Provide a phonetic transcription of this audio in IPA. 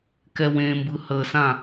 kɛwẽmbɯ həsã

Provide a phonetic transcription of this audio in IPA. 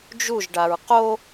d͡ʒuʒ ɖaɹqo

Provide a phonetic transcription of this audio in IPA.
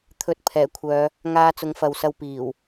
t̪ʰɵ˨˥t̚ pʰɛː˨˩kʷʰœː˨˧ | ŋaː˧t͡sʊ˨˥ŋfɐ˨w sɐ˧wpiː˨˩w

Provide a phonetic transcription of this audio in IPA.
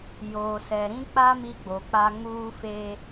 joː˨sɛ˨ ɾĩ˦k͡pa˦ mi˦ɡ͡bo˨k͡pa˦ ŋuː˦feː˦

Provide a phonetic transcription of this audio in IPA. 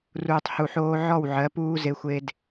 ruː˨tˤhu˨ħoː˦ ʕɔ˦˨wʕɜ˨˦puː˦ ze˦xʷe˦d

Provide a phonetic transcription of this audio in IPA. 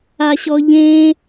aɕɔʎẽ

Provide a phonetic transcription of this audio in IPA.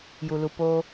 ju˨lu˨ poː˧

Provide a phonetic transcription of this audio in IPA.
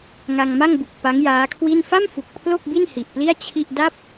ŋa˧ŋma˥˩ŋbu˨˩k̚ pa˦˥ŋjaː˦˥kʰwi˥˩n fa˥˩mfu˨˩k̚ pʰlo˥˩k̚ bi˥˩nhi˨˩ʔpli˥˩a̯ t͡ɕʰi˥˩ʔ da˥˩p̚

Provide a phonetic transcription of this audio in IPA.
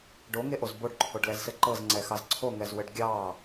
ɖoŋeʔoz boɖǃʰoɖlɛzsɘ ǃɤzŋ͡ǀɛxɑz ǀʰoŋɛzwɘɖ ɡʲɑ

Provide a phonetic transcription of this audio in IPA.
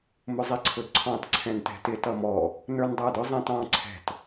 mʊzˤiǀʰʊdǀʰɑ̃t ǀʰɛ̃ntɛ̤tɪ tʌmɔ | nə˞ndˤə˞dʊ zˤɛ̃tɑ̃ ǀʰɛ̤t

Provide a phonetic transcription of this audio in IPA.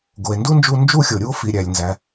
ɡo˩e̯ ndu˥nd͡ʒu˧ nd͡ʒu˧xʲo˩ɾʲu˧o̯ fi˩ɾʲæ˩lʲ nzæ˩

